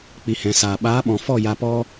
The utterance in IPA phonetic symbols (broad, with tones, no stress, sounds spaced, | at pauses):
k͡p i˨ h ɛ̃˨ s aː˨ ɓ aː˨˦ ɓ ɔ̃˨ f ɔ˦˨ j a˧ p ɔ˦